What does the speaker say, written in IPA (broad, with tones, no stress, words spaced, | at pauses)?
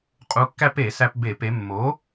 qʼu˩˧kːæ˧p e˧˩˧sæ˧pbe˧˩˧ pe˩˧mːo˩˥